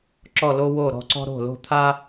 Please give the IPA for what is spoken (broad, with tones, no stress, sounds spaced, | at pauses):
ǁ ɔ˥˧ l o˥ w o˥˧ ɾ ɔ̤˥˧ ǀ ɔ̤˥ ɾ o̤˥˧ l o̤˥˧ t̪ʰ a˥